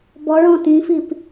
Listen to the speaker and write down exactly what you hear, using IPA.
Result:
b ɔ ɭ ɔ̃ t ĩ f i p

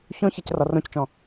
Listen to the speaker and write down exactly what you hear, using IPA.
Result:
ç õ ç ɛ c r ɒ r õ c t͡ʃ ɔ̃

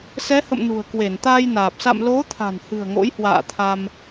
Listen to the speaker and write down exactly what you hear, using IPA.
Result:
s ɛ˨˦ h ə̰˧˨ m n ṳ˨˩ ə̯ k w e˧˩ n t̪ aː˧ j n aː˨˩ p̚ s a̰˧˨ m l o˨˦ t̪ʰ a̤˨˩ n h ɨ̤˨˩ ə̯ ŋ o̰˧˥ j h w a̰ː˧˨ t̪ʰ a˧ m

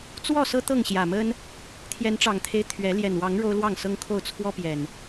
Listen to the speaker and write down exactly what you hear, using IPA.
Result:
t͡s w ɔ˥˨ s ɤ˦ t̪ ɤ˥˨ ŋ ɕ j ä˨˩ m ə˦ n | t̪ʰ j ɛ˨˦ n ʈ͡ʂ ɑ˨˩ ŋ t̪ʰ e˦ ɪ̯ t̪ʰ ɥ ɛ˨˦ l j ɛ˨˩ n w ɑ˨˦ ŋ ɻ o˦ ʊ̯ l w ɑ˥˨ ŋ s ɤ˦ ŋ kʰ o˥˨ ʊ̯ t͡sʰ w ɔ˦ p j ɛ˨˩ n

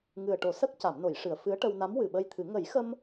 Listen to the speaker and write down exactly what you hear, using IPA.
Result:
ŋ ɨ˨˩ ə̯ ʈ o˨˩˦ s ə˦˥ k̚ c a˨˩˨ m n o˨˩˨ j ʂ ɨ˨˩˨ ə̯ f ɨ˧˥ ə̯ ʈ ə˧ w n a˧˥ m w ɨ˨˩ ɓ ə˧ j t̪ʰ ɨ˨˩˦ ŋ ə˨˩˦ j x ə˧ m

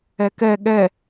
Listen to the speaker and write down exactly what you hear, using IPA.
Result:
ɛ k ɛ ɠ ɛ

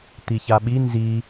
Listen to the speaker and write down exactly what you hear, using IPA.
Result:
t̪ i ç a ɓ i n z i

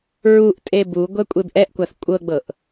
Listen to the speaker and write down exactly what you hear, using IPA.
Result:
ɹ u ʔ tʼ e b u ɡʷ ɛ kʷʼ e b ʔ ɛ ʔ kʷ a θ kʷʼ ɤ ɡ͡b ɤ ʔ

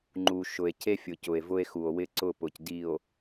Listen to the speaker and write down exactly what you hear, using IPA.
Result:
ŋ͡ǃ u˨ ʃ ʊ˨ e̯ cʰ e˦ fʲ ʊ˨ c ʊ˨ e̯ v ʊ˦ e̯ x u˨ o̯ w ɪ˦ ǀ ʊ˦˨ p ʊ˨ c d i˨ o̯

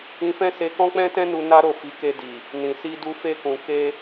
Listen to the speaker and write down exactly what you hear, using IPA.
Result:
ĩ˧ f ɛ̃˦ s e˧ k ɔ̃˦ k͡p ɛ̃˦ t ɛ̃˦ n u˦ n a˦ ɾ o˦˨ f i˨˦ k e˧ d i˨ | n ĩ˨ s i˧ d u˧ f e˧ k ũ˨ k e˧

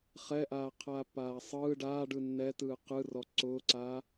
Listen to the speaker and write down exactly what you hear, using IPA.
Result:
χ ɛ ʔ aː qʰ aː pː aː sˤ ɯː ɖ aː ɖ ɯ nː ɛ t ɯː q ɯ r ɔ ǀ ʊː ǀ aː

